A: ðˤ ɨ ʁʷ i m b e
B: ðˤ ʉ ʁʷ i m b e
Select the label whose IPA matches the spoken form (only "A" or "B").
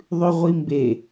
B